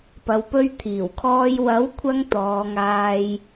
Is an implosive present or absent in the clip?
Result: absent